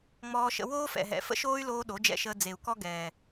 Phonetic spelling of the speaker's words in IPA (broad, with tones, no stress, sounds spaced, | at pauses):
ŋ͡m ɔː˧ ʃ ə̰˧ w oː˦ f ɛ̰˨ ɦ ɛ̰˨ f ə̰˦ ʃ oː˦ y̯ l oː˧ ɗ o˨˦ d͡ʒ ɛ̰˧ ʃ əː˧ d͡z e˨ u̯ k ɔ˦ ɡ ɛː˨